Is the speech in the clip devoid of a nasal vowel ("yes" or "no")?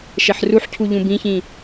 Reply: no